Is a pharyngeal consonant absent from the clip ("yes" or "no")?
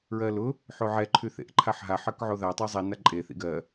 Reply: no